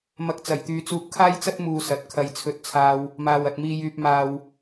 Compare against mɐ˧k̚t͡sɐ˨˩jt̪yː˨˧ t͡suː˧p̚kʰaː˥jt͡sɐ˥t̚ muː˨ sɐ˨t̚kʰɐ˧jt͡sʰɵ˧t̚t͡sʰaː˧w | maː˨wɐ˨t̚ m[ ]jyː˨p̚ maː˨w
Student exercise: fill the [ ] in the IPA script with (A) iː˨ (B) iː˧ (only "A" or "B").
A